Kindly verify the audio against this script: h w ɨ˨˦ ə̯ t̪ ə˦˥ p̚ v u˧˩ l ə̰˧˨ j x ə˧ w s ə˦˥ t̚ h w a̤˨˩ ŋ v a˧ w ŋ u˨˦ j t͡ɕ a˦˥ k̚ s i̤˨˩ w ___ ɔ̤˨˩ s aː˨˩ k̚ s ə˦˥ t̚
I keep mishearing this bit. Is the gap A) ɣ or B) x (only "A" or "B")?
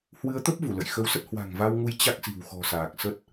B